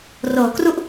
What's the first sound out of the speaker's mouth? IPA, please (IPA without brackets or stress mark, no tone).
r